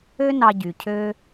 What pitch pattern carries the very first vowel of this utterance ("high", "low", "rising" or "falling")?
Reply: high